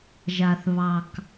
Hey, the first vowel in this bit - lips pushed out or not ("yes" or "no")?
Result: no